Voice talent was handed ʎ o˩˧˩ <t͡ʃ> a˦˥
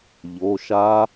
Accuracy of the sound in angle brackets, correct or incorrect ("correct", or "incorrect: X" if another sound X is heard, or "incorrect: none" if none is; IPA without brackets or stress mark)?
incorrect: ʃ